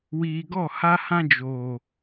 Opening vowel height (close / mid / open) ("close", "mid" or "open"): close